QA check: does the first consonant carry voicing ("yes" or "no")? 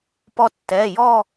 no